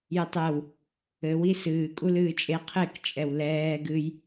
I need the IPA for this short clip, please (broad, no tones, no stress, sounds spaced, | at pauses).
j ɘ tˤ ɛ w | ɘ w i s ɨː kʼ u l ɨː t͡ʃʼ e qʰ e k t͡ʃʼ ɛ w l ɛː ɡ ɨ j